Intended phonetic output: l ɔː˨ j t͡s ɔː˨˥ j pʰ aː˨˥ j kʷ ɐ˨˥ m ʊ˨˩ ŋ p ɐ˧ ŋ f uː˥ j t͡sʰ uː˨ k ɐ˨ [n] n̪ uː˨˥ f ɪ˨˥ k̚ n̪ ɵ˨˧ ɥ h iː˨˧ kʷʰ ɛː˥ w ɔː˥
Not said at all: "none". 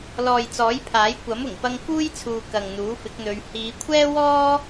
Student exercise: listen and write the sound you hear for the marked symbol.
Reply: ŋ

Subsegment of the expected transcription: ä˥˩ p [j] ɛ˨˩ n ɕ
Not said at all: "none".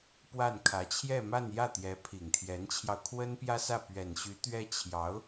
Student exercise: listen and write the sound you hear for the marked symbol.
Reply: ɥ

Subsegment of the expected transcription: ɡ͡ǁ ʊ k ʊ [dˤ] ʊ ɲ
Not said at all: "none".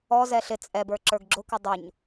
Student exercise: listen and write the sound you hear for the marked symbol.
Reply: dˤ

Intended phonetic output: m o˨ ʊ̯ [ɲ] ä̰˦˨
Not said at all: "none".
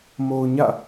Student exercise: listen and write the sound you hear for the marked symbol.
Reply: ɲ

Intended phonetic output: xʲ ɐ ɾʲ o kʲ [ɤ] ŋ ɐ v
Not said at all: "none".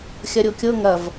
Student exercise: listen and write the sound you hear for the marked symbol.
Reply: ɤ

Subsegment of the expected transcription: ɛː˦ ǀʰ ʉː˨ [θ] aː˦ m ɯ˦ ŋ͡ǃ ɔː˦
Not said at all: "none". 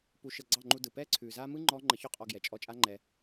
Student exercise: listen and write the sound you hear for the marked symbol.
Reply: z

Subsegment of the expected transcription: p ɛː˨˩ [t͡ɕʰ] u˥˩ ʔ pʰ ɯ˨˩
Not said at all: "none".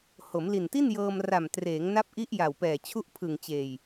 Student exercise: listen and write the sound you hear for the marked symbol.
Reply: t͡ɕʰ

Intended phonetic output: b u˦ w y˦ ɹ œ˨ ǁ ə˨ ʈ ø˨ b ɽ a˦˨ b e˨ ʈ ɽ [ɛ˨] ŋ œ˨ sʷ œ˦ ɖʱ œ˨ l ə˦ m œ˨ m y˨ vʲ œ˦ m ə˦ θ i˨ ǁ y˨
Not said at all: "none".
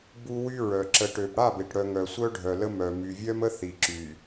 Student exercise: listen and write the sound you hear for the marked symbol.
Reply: œ˨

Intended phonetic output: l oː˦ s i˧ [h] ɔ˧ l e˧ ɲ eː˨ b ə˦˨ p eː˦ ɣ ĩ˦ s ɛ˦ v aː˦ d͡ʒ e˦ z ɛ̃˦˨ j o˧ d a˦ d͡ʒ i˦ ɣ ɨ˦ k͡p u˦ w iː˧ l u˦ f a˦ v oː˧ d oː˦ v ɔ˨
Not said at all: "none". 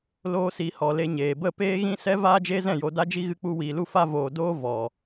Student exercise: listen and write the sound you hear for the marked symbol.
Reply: h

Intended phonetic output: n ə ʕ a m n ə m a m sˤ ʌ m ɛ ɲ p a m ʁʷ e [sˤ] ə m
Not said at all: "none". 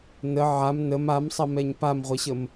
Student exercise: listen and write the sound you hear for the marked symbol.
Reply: ɕ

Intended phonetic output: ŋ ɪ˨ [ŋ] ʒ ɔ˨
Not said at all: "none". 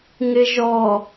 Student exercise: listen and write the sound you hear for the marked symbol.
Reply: none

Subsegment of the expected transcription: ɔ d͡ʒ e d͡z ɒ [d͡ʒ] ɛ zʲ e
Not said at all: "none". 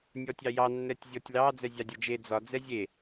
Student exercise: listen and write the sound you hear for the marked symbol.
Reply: d͡z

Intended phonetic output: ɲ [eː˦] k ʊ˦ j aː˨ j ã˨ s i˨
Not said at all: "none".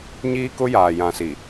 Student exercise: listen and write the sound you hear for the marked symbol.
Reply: iː˦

